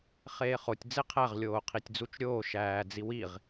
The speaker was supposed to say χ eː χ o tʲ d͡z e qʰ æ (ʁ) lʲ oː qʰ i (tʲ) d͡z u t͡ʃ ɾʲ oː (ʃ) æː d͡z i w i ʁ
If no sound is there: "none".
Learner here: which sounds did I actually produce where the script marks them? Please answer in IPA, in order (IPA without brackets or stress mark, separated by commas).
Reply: ʁ, tʲ, ʃ